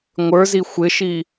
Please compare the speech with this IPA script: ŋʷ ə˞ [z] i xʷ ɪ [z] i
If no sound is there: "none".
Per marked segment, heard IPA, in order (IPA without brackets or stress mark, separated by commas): z, ʃ